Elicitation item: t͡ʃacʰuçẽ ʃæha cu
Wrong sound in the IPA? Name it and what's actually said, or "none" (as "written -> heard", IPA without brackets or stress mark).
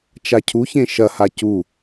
æ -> ɐ